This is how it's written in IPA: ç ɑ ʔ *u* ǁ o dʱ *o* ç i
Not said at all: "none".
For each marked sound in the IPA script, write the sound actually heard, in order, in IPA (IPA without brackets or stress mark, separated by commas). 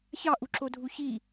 u, u